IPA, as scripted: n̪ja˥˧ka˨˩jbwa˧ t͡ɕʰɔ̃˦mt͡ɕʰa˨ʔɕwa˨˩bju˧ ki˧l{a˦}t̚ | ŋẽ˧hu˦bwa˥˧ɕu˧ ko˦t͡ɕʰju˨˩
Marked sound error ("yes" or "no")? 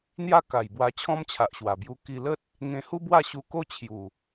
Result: yes